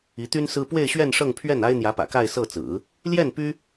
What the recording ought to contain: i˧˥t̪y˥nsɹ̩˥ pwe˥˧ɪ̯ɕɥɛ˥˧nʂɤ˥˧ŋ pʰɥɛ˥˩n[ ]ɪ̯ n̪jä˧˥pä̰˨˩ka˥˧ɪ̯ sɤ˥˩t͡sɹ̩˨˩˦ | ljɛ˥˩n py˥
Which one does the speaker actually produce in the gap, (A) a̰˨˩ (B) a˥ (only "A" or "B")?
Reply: B